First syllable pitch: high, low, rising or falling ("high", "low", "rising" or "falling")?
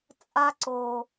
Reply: high